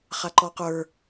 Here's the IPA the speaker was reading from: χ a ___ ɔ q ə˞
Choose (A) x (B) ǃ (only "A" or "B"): B